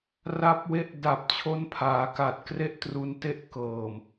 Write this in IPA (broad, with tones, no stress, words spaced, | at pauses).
ra˦˥p̚we˦˥ʔ da˨˩p̚t͡ɕʰo˦˥npʰaː˩˦ka˨˩t̚ kre˥˩ʔtru˧nte˥˩ʔ kɤː˨˩m